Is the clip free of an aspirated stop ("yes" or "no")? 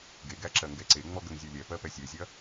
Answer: yes